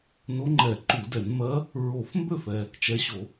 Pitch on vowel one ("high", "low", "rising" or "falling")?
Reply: rising